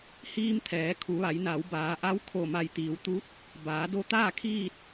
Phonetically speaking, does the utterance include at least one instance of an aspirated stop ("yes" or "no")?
yes